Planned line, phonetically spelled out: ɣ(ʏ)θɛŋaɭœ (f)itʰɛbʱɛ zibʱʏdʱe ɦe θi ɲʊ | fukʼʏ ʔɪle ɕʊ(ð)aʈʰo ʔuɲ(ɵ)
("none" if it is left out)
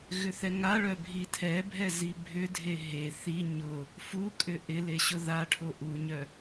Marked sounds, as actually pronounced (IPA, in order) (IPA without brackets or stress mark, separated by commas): ʏ, bʱ, ð, œ